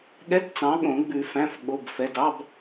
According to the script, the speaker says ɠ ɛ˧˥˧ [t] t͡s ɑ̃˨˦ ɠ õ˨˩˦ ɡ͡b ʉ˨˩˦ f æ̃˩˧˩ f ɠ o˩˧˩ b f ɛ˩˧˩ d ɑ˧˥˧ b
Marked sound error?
no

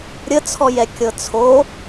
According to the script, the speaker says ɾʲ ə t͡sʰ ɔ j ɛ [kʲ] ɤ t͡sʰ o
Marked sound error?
no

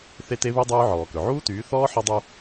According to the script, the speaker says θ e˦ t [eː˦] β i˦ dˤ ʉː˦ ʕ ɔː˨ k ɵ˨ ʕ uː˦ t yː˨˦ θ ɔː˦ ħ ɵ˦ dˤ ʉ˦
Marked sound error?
yes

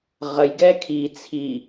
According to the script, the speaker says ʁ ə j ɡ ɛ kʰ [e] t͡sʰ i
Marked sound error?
yes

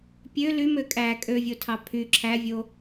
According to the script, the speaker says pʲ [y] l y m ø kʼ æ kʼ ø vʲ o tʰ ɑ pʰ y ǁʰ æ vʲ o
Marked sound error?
yes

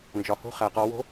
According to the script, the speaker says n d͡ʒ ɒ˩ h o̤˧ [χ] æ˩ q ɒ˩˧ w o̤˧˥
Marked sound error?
no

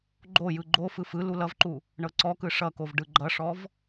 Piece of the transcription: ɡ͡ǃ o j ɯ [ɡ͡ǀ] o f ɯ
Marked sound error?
yes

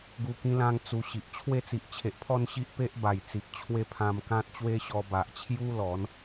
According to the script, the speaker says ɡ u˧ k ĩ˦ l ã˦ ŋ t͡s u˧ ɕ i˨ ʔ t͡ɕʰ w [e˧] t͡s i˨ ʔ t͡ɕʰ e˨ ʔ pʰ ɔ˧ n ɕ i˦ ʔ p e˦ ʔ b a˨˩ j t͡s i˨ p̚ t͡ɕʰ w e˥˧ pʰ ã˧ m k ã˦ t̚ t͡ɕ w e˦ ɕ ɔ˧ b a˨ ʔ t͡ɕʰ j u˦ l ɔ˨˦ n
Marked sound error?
no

